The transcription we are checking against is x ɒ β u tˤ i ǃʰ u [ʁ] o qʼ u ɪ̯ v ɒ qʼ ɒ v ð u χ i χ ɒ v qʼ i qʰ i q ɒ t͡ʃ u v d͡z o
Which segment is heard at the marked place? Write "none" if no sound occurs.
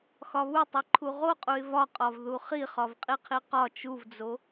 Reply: ʁ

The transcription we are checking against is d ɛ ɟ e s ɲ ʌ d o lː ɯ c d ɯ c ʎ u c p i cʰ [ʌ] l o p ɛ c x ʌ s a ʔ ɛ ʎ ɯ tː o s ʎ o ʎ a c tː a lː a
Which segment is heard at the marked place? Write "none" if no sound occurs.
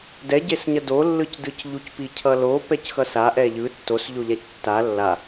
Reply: ʌ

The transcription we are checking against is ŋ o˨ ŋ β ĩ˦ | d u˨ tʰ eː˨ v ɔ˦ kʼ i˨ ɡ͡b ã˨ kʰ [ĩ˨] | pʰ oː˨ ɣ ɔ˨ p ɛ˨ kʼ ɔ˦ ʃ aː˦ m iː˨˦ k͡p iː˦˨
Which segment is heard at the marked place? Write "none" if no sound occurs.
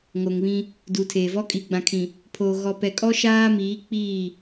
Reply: ĩ˨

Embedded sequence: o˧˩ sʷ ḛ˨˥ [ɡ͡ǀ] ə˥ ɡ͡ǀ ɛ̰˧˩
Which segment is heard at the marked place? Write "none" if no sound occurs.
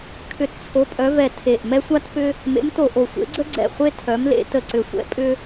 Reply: ɡ͡ǀ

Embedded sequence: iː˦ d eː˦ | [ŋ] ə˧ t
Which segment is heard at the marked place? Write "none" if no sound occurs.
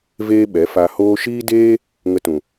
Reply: ŋ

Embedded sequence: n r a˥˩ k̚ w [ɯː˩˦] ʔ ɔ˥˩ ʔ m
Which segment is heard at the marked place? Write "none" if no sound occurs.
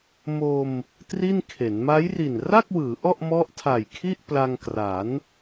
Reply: ɯː˩˦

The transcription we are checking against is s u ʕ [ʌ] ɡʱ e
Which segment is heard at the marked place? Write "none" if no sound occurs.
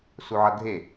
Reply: ʌ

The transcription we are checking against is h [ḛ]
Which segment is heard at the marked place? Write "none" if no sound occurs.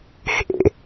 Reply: ḛ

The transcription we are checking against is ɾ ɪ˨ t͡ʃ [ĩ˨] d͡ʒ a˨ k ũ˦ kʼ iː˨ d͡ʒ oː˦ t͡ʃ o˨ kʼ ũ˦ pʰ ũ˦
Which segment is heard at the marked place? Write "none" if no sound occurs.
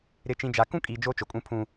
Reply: ĩ˨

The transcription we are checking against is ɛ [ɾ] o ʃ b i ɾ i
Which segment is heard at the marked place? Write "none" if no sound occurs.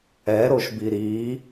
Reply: ɾ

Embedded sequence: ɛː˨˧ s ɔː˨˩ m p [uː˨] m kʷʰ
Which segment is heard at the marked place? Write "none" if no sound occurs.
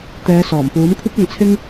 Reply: uː˨˥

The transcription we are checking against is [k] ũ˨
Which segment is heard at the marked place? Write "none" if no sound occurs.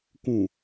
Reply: k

